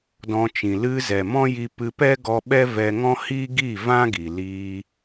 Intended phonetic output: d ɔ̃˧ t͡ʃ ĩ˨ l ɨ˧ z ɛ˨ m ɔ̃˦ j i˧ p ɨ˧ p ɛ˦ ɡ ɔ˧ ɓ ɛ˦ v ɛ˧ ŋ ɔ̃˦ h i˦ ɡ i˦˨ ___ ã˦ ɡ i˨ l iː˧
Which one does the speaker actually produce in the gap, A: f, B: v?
B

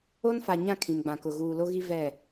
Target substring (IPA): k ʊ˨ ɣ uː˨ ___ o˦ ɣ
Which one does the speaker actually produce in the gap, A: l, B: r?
A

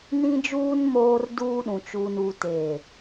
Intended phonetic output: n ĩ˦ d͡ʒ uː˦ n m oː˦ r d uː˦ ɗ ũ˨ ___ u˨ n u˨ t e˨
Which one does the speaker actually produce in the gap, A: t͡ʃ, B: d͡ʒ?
A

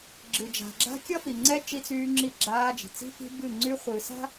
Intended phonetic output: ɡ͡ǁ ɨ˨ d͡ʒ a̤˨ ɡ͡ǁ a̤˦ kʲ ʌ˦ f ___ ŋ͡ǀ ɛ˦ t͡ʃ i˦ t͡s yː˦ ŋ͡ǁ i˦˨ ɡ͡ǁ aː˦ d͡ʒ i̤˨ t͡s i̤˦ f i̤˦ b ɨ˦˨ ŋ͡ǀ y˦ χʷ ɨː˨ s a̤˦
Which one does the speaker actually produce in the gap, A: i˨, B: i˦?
A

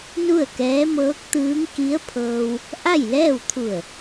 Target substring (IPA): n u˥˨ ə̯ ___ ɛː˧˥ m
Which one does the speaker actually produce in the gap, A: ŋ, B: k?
B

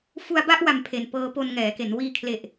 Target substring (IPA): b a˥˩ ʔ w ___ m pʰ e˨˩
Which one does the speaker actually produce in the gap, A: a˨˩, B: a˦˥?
A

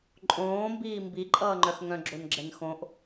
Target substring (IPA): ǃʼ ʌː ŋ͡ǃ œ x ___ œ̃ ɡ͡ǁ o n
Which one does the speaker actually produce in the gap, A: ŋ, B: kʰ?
A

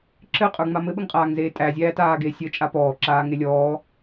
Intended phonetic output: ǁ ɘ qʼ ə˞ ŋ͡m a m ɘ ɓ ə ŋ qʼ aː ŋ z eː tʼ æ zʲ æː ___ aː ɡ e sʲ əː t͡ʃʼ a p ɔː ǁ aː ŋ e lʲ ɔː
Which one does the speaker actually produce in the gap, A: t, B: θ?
A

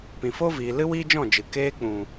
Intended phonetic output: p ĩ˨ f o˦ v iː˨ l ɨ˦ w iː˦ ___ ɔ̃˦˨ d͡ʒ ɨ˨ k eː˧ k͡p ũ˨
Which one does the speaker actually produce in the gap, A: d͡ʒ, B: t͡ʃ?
A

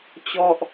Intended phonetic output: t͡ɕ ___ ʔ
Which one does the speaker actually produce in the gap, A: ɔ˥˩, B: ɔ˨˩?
A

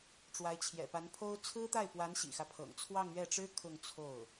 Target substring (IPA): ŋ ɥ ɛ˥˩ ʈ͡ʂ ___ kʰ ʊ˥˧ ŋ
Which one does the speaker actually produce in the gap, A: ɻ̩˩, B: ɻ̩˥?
B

